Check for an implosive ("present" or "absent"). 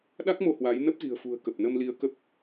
present